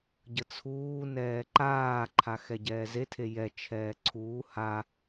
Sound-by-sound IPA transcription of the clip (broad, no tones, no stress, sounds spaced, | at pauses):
ɟ ə t͡sʰ uː n ɛː ǃ aː ǃʰ a x ɛ ɟ ɛː z e tʰ e j ɛ t͡ʃʰ ɛː ǀʰ uː h a